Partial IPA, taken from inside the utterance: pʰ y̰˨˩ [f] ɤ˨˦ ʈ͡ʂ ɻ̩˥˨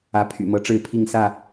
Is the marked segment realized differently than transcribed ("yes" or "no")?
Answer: yes